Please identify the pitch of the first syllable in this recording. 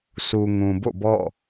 low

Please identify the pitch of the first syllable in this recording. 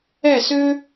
falling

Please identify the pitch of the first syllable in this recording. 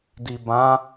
low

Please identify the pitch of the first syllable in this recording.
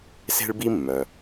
high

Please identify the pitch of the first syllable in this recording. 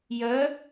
rising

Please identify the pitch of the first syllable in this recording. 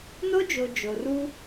high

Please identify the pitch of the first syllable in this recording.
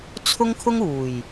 high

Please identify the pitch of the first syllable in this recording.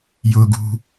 low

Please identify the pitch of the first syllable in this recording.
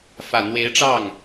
low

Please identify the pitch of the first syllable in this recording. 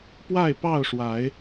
falling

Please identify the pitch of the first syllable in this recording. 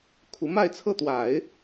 rising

